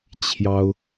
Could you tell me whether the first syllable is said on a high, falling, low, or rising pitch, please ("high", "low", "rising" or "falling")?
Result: high